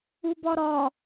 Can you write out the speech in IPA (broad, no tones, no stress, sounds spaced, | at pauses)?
u b ɒ ɾ ɒ